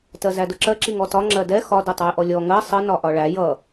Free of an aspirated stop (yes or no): yes